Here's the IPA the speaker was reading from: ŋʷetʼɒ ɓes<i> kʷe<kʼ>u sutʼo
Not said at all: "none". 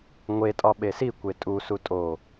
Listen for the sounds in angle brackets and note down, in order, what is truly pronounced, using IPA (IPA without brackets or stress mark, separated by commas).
i, tʼ